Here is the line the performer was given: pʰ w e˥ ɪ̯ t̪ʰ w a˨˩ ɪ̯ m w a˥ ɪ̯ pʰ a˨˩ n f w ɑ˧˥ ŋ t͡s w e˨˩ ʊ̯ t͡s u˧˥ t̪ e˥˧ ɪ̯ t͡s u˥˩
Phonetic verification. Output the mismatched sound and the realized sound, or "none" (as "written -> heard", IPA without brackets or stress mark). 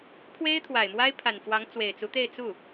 ʊ̯ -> ɪ̯